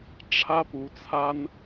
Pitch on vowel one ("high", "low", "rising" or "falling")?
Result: high